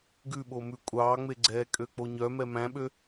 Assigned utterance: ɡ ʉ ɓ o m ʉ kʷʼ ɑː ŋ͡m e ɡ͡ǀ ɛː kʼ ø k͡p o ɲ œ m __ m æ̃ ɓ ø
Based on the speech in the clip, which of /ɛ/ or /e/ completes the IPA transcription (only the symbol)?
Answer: ɛ